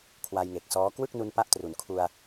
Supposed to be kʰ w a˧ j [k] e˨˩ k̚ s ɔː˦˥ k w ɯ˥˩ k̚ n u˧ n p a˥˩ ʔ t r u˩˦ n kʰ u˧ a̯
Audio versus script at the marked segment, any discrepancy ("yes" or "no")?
yes